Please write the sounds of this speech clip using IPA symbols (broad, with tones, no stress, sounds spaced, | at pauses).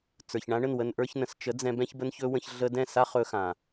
t͡s ə˞˨ ç ɳ ã˧ ɳ ə˦˨ n w ə˧ n ʔ ə˞˧ ç n ə̃˨ s t͡ʃ ə˨˦ d͡z ɛ̃˧ b ɛ̃˦ ç b ə˦ n ç ɵ˦ w ə̃˧ ç ɮ ə˧ d ɛ̃˦˨ s a˦ χ ɵ˦ x ã˨